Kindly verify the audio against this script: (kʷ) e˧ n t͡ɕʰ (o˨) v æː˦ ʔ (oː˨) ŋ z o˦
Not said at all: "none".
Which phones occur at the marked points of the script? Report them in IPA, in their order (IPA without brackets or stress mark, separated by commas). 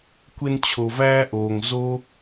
kʷ, o˨, oː˨